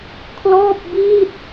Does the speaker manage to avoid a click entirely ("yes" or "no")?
yes